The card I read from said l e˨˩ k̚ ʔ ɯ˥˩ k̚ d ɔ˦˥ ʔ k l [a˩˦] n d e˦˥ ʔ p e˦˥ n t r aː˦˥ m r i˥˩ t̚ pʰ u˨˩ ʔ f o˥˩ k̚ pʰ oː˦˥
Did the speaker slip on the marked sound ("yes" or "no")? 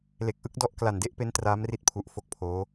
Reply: yes